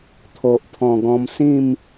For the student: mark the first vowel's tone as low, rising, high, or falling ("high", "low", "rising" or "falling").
low